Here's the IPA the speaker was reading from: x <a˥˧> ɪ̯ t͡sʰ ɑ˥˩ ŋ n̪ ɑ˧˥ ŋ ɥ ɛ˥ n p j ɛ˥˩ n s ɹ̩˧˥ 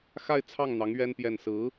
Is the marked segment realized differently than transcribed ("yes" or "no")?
no